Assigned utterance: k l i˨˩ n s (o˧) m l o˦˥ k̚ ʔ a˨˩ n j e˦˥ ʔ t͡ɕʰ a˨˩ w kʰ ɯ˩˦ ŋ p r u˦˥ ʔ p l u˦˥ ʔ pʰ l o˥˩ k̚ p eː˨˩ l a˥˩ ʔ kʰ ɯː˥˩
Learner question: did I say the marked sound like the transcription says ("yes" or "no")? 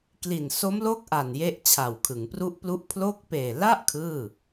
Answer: no